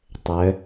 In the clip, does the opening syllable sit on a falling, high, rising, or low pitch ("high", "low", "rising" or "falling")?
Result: rising